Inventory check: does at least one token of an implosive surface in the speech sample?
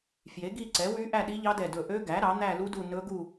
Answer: yes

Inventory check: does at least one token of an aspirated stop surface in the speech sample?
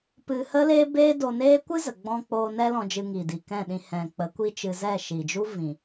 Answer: no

